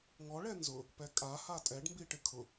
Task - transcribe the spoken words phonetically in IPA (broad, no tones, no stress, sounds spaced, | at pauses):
ŋ ɔ ɭ ɛ n z ʊ | p ɛ kʼ a h a tʼ ɛ ɖ m b i ʈ ɪ kʰ ʊ